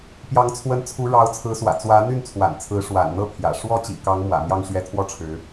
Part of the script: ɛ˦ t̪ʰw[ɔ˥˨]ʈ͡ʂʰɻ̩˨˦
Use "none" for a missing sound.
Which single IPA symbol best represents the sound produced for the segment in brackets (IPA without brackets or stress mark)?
ɔ˥˨